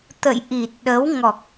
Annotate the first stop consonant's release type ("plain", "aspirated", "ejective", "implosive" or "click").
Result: plain